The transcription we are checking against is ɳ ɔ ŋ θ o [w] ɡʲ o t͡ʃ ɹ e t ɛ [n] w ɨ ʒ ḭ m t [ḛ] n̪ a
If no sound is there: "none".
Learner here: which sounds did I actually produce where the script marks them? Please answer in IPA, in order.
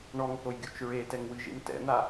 j, ŋ, ɛ̰

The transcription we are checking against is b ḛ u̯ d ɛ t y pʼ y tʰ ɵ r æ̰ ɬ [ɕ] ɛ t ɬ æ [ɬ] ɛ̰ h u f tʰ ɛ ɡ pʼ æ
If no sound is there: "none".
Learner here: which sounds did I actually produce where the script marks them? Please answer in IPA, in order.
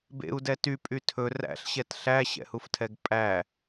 ɕ, ɕ

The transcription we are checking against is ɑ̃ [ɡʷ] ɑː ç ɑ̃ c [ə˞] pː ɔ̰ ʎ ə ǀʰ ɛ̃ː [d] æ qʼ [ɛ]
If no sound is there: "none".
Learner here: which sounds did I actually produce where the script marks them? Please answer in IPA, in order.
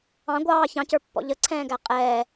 ɡʷ, ə˞, ɡ, ɛː

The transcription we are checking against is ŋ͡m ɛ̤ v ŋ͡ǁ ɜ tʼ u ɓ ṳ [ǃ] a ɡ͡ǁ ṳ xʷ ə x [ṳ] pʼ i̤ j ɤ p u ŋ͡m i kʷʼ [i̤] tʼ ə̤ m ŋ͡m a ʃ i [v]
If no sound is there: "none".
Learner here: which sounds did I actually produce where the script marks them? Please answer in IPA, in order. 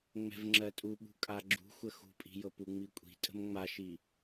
kʼ, ṳ, i̤, none

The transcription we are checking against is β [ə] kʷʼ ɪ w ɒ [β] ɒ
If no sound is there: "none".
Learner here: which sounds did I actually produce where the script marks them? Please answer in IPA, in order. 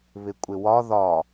ɪ, ð

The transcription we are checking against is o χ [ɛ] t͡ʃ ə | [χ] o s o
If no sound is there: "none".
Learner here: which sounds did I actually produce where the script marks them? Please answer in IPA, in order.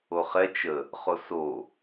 ɛ, χ

